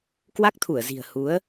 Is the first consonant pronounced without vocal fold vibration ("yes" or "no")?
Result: yes